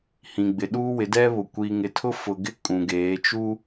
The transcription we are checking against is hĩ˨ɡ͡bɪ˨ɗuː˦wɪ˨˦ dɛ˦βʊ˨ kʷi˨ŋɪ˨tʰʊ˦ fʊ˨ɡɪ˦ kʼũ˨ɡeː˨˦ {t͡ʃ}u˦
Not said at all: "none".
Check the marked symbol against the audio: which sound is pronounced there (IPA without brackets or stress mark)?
t͡ʃ